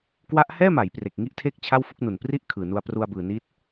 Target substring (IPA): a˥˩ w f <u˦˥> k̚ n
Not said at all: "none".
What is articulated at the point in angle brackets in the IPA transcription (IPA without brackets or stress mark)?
u˦˥